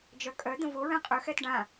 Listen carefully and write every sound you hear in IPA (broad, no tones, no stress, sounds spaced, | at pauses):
d͡ʒ œ kʼ œ d̪ ə̃ v o ɹ ɛ̃ qʼ œ x ɛ t ɖ ã